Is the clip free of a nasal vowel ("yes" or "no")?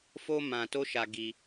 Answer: no